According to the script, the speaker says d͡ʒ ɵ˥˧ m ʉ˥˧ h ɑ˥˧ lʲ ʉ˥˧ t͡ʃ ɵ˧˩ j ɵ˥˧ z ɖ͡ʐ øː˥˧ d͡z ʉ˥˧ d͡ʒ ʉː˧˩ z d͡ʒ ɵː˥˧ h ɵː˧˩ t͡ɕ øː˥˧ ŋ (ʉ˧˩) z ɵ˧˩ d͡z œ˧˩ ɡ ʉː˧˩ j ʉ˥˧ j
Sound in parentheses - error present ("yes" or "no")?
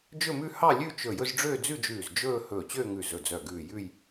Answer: no